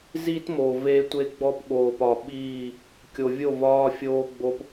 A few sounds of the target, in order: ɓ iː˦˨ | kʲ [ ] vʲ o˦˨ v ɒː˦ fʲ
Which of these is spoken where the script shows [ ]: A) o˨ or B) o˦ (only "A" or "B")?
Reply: A